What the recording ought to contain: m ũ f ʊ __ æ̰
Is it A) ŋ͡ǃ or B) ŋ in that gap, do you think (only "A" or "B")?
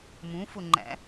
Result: A